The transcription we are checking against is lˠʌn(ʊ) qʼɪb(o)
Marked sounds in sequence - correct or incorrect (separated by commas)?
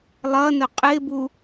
correct, incorrect